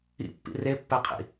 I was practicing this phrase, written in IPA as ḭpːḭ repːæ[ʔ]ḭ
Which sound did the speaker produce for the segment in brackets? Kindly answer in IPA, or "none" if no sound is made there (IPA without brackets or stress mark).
qʰ